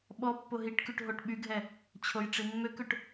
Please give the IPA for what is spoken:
ɓ ɔ pː o ɦ i ʈ k y ʈ ɦ o ʈ ɓ y ɡʱ ɛ | t͡ɕʰ o j ʈ͡ʂ i mː ø k ø ʈ

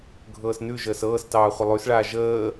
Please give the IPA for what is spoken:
ɡʱ ɤː s n ʉ ʒ əː s ɤː s t ɑː χʷ ə lˠ ʉ s ɭ aː ʒ əː

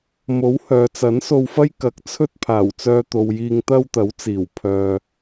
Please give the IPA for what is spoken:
m o˨˥ w h œː˨ t͡s ɐ˨˥ n s o˧ w f ɐ˥ j k ɐ˨˥ k̚ t͡sʰ ɵ˥ t̚ pʰ aː˨˩ w t͡s œː˧ t̪ o˨ w j iː˧ ŋ t̪ ɐ˥ w t̪ ɐ˨˥ w t͡s iː˨˩ w pʰ œː˧

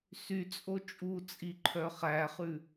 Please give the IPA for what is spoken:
s y t͡sʼ o t͡ʃʼ u t͡sʼ i ǃʰ œ χ æ χ ʉ

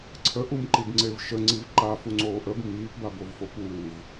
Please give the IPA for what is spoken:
ǀʰ ə ʔ u m ǃ i b ŋ͡ǀ e v ʃ ə ŋ͡ǀ i v ǃ a f u ŋ͡ǀ oː ʔ ə b m iː p b a b o v f o p uː v

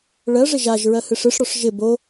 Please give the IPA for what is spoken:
ɭ ɜ ʐ ɪ ʒ a ʒ ɹ ɜ h ɨ ʂ ɨ ʂ ɽ ɔ ʂ ʒ ɪ b o

